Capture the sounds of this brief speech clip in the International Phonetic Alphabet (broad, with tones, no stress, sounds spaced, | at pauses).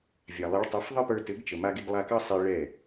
vʲ a˨ lˠ i˨˦ ɭ tˤ a˨˦ f ðˤ ɘ˦ p ə˞˧ t ɘ˨˦ ɡ t͡ʃ ə˨ m a˧ ɡ e˧ ɡ lˠ a˧ k ɑ˦ sˤ i˧ ɭ ɛ˦˨